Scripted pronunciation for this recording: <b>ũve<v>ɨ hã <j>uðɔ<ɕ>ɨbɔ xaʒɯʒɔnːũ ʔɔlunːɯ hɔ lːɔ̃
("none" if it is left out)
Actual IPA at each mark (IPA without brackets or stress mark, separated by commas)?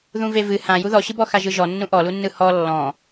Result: ð, v, j, ɕ